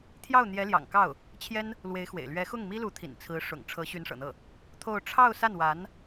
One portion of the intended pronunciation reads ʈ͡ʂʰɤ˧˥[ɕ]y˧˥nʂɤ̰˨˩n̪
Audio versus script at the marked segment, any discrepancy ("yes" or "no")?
no